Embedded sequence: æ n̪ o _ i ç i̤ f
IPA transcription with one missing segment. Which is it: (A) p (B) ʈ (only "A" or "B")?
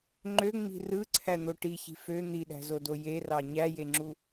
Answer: B